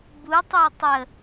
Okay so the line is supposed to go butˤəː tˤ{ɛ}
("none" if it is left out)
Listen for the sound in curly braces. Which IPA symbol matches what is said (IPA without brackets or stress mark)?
ə